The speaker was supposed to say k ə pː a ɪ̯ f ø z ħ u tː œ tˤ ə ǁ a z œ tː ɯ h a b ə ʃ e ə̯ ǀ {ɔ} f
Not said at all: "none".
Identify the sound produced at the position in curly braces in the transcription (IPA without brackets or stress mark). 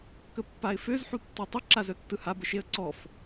ɔ